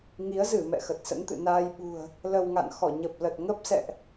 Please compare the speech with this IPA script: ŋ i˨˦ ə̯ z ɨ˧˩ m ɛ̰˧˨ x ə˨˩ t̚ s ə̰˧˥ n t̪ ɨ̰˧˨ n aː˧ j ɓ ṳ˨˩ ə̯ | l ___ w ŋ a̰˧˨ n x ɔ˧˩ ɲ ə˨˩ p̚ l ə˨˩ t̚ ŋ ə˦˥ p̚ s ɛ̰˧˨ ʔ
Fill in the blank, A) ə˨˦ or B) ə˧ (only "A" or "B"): B